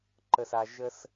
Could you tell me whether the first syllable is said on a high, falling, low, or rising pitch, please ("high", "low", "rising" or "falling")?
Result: low